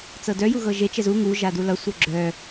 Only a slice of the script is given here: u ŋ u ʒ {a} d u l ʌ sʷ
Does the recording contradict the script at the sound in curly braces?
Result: no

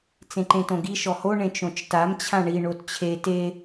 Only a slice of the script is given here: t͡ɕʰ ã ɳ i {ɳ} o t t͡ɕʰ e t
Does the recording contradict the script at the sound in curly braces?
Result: no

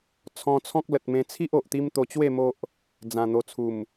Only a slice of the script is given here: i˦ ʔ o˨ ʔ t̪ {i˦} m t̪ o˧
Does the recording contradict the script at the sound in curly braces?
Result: no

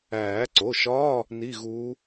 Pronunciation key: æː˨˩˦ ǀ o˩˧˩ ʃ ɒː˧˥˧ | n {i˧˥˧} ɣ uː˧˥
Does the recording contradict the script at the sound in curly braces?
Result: no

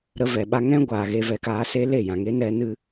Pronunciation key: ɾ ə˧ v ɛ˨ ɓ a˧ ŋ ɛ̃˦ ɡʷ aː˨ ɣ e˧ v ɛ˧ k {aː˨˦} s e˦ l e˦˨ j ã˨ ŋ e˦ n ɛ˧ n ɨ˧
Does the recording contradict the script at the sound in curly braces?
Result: no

